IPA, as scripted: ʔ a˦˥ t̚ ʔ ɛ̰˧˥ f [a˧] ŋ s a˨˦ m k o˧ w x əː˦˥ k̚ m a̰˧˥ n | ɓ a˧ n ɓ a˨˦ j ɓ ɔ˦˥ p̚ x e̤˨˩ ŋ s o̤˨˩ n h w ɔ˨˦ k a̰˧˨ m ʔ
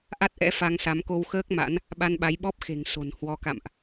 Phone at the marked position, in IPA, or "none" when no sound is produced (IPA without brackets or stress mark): a˧